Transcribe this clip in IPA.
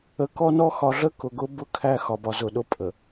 ə˨kɔ˦nɔ˦ xɒ˨ɮə˦ kʊ˨ɡʊ˦bʊ˦ kʰæ˦ xɒ˨bɒ˨zʊ˨ɗʊ˦ pʼə˨

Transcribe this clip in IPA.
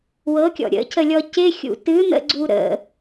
wɤkʲɔ̰ ɾʲə̰cʰəlʲɔ cɪxʲṵ tɨn̪ə̰ɡ͡ǀu ɾə̰

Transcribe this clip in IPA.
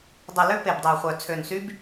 dˤə˨˩ lø˦˥pe˨˩bdˤeː˨˩χʷœ˨˩ t͡sʰø˨˩nsy˦˥b

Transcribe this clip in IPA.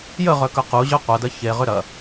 jəʁœkœ quʑœ qʷɐdɐ çeʁʏ ɾɐ

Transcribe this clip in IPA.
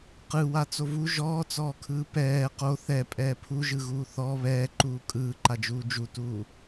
qɯwa t͡sovu ʒɔːt͡sɔːkʰɯː pɛː qo θɛ pʼɛːpʰuʒɯɣuː θɔ βɛːǃuː kʼɯːǃad͡ʒuː d͡ʒutuː

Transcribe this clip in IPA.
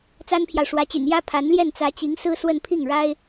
t͡sa˥npʰjɑ˨ʊ̯ʂwä˧˥t͡ɕy̰˨˩n jä˥ pʰa˧˥nljɛ˥˩nt͡sä˧˥ t͡ɕi˧˥ŋsɹ̩˥swə˥˧n pʰi˥˩ŋɻa˥ɪ̯

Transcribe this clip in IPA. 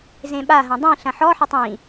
zẽɓaɦɐ̃ dˤĩ ɬɐ̃ħɔħɐtˤ ĩ

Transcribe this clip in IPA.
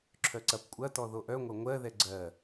ǁʰœǀɐp kʷʼɐtɔ ðoʔœŋʷɐ ŋʷɜðɛ ɡ͡ǀɜ

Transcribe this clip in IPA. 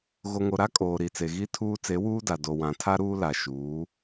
ɣo˨ŋo˨ɾa˦ kʼoː˨ɾi˨t͡se˨ ɣi˦tʰuː˦ t͡se˨˦wuː˦da˨ do˨ wã˨ tʰa˦ɾuː˦la˨ ʃuː˨˦

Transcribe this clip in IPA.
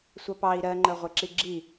sʷɑpɑi̯ ɾɜŋ͡ǃɜʁʷɛǁi ɡ͡ǁi

